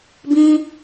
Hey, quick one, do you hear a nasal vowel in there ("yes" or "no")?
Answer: yes